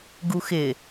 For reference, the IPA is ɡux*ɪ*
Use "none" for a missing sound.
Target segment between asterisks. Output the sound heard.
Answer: ɪ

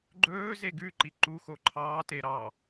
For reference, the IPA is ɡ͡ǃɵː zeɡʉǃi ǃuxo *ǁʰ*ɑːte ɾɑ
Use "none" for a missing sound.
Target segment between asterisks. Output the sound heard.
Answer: ǃʰ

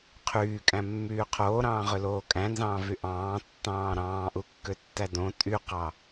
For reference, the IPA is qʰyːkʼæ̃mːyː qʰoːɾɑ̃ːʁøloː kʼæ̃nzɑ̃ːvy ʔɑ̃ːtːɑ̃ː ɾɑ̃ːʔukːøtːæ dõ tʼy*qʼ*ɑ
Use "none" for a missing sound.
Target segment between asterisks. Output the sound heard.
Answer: q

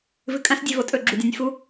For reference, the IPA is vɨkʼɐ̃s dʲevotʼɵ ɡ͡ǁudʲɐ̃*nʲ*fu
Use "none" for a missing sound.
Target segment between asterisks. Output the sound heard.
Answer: nʲ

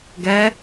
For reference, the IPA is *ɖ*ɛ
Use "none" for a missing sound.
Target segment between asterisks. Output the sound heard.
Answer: ɡ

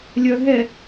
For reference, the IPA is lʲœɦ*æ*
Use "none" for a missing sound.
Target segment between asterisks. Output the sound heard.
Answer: ɛ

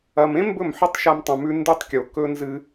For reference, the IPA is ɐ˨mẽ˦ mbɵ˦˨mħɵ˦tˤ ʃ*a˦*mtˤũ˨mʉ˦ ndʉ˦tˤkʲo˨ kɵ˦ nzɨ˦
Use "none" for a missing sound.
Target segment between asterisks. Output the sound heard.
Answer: a˦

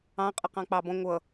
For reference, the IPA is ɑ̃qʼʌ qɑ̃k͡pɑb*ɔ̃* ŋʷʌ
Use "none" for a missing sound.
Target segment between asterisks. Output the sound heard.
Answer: ɔ̃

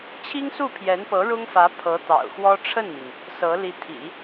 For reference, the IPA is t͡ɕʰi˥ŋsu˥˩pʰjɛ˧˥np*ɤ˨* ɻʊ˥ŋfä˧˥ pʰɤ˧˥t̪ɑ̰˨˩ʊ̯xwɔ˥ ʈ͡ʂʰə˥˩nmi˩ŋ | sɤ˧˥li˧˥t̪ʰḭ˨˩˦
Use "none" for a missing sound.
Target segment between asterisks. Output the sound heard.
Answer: ɤ˧˥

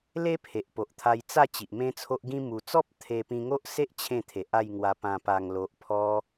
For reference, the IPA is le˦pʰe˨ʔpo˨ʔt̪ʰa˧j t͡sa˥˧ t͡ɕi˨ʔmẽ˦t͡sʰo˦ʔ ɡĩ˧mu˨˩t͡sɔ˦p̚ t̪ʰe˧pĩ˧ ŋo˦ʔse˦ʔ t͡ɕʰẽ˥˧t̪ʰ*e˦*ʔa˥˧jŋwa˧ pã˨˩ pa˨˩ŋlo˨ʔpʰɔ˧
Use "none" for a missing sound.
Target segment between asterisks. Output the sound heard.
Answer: e˨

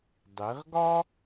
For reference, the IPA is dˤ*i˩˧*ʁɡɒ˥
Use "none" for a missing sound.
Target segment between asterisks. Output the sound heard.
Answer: i˩˧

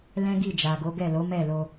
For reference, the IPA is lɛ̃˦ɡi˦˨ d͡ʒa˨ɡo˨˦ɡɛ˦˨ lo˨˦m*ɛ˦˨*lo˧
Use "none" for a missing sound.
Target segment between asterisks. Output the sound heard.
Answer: ɛ˦˨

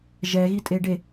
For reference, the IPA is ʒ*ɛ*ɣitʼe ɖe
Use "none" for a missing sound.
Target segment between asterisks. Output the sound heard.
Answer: ɛ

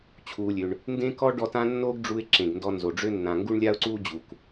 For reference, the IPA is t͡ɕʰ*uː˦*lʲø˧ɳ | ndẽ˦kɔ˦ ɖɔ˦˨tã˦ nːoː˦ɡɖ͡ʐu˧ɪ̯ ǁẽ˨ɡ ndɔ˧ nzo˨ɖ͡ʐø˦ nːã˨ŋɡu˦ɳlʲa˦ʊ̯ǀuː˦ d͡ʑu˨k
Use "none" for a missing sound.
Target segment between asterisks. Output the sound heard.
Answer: uː˧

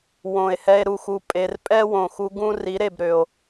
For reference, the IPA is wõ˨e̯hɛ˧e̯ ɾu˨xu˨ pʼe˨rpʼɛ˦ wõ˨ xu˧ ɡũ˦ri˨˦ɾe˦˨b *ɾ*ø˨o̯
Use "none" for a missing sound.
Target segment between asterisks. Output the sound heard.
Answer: ɾ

